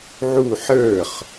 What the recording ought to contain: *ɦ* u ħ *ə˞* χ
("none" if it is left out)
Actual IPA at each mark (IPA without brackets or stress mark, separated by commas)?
ʕ, ə˞